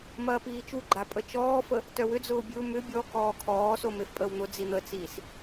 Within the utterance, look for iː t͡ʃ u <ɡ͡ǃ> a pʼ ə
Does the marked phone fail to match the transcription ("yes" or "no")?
no